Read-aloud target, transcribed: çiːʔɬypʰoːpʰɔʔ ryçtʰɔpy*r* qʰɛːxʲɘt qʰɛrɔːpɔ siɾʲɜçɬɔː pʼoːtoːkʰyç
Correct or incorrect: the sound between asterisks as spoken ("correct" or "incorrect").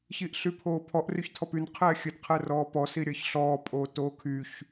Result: incorrect